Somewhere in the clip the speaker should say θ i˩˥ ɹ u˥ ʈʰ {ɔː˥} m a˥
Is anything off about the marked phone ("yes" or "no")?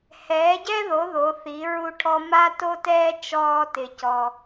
yes